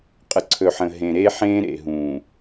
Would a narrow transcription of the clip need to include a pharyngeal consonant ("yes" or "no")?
yes